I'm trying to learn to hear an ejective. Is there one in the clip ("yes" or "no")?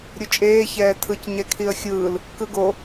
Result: yes